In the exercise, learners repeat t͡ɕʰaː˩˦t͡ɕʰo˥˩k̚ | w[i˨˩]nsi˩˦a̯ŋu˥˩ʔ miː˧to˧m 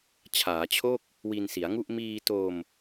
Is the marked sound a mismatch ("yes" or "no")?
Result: yes